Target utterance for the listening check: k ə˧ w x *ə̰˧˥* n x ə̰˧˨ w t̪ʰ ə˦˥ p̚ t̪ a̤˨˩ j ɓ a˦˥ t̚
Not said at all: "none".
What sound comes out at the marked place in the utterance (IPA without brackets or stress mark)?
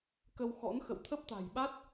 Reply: ɔ̰˧˥